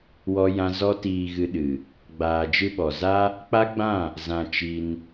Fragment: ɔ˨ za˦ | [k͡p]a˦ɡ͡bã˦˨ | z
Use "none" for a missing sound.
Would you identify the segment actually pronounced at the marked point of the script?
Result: k͡p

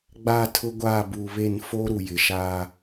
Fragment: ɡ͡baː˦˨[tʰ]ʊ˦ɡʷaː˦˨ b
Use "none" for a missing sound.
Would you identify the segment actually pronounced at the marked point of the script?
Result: tʰ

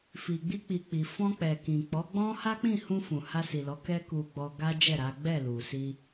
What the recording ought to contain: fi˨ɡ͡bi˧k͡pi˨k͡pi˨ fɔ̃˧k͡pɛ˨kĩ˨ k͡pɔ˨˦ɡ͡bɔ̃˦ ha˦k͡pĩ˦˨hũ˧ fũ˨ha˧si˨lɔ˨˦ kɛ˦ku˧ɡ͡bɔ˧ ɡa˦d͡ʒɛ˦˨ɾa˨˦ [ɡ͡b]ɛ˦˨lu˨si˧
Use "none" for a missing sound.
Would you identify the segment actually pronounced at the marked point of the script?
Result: ɡ͡b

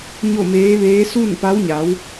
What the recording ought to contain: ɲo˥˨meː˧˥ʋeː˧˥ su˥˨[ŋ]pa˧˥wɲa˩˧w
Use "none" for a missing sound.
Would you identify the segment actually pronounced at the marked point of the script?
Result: n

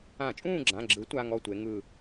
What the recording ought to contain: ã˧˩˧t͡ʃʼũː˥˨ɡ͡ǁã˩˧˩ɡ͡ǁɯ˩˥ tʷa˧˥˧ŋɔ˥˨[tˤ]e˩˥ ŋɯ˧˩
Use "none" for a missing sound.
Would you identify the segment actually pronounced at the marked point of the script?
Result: tʷ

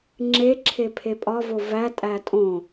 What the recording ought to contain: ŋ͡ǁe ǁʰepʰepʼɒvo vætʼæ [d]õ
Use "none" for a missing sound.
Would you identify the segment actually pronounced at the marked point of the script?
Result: tʼ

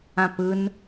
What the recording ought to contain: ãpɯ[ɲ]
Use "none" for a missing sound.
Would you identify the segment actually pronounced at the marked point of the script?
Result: n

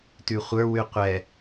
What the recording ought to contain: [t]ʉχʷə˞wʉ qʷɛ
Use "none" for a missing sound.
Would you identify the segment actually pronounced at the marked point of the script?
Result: t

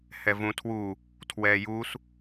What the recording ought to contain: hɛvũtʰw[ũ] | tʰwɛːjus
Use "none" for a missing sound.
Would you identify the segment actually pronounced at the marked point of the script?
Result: u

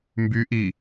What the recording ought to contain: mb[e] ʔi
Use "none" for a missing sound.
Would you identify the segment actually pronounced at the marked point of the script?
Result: y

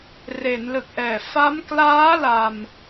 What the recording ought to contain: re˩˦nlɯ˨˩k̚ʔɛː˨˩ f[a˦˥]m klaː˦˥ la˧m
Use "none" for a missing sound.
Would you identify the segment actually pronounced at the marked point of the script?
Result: a˦˥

